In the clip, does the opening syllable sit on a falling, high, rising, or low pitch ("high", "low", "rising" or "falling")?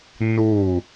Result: falling